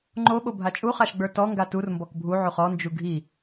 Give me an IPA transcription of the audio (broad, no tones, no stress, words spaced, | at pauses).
ŋ͡ǃoɓobʱa t͡ʃʼuχaʃɡ͡bə˞ tɔŋɡa turmbɔk bʱuʕuχ ɔnd͡ʒu ɡʱi